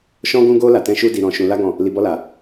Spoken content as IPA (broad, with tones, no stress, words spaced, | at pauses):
ʃɔ̃˦ɡũ˦ɡo˦ la˧tɛ̃˦ ʃu˦di˧ɾɔ̃˧ ʃũ˧la˦ɡɔ̃˦˨ | li˧bɔ˦la˧